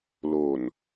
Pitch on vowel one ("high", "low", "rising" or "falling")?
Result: low